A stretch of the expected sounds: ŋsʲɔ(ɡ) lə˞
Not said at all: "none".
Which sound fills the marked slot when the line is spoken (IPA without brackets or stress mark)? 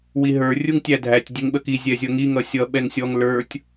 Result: ŋ